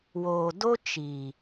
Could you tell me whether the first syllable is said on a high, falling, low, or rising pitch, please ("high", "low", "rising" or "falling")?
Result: low